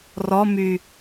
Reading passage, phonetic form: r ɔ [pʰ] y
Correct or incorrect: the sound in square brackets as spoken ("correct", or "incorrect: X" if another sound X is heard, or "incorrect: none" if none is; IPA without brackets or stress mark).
incorrect: m